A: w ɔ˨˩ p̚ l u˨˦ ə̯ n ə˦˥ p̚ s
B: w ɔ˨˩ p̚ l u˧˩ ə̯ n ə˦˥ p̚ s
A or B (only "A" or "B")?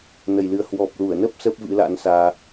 B